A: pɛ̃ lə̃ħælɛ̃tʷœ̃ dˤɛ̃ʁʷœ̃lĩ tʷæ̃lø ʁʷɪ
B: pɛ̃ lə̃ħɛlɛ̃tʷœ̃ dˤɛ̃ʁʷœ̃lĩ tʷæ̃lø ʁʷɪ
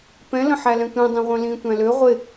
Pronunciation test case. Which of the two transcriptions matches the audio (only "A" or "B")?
A